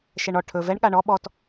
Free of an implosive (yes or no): no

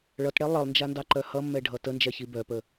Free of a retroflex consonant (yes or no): no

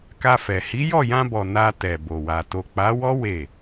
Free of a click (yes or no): yes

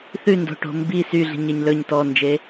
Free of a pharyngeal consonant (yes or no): yes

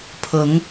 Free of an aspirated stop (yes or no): no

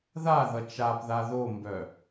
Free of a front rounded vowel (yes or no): no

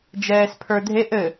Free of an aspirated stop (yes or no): no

